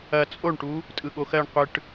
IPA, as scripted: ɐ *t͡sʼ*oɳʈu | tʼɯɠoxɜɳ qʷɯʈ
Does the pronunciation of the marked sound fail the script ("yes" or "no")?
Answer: no